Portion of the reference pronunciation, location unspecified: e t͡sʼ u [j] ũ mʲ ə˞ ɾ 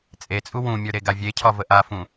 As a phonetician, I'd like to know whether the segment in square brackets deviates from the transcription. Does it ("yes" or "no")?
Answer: yes